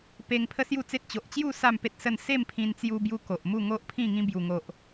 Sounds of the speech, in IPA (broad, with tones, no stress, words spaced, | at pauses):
pe˧ŋ pʰə˦sju˥˧t͡se˦t̚ t͡ɕo˨ʔt͡ɕju˥˧ sa˥˧mpe˦t̚sə˥˧n se˥˧mpʰĩ˧nt͡sju˧bju˧ ko˨ʔmu˥˧ŋo˦ʔpʰĩ˥˧ ŋĩ˧bju˨˩ŋo˨ʔ